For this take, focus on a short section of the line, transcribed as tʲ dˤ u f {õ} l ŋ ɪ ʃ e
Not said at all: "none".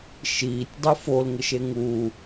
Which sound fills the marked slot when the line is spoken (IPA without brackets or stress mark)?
o